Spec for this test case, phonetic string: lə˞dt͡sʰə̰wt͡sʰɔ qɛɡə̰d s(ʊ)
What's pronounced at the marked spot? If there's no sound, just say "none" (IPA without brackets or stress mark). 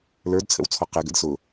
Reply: ʊ